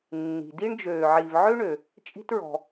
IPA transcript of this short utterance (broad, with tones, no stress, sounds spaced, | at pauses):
nː i̤˩ d i˥ ɳ d͡ʒ øː˨ ʕ i˨ v ʕ ø˥ ɳ ø˩ | t͡ʃʼ i̤˦ t ɹ ɔ̤˩